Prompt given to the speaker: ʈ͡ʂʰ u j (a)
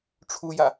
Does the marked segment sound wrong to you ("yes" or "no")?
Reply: no